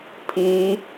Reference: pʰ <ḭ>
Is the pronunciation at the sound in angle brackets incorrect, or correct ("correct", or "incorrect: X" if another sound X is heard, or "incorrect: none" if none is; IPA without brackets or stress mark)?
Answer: incorrect: i